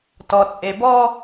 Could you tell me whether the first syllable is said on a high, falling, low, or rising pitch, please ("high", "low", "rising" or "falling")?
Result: low